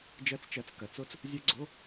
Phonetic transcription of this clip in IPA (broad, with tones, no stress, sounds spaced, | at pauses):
d͡ʒ ɜ˦˥ t͡s t͡ʃ ɜ˨˥ t͡s k ɜ˩˧ t͡s o˦˥ t͡s | zʲ ɜ˦˥ ɡ͡ǀ o˧˥˧